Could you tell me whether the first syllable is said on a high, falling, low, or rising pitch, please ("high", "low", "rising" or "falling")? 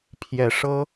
low